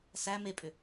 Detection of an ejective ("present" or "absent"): present